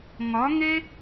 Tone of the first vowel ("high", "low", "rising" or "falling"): rising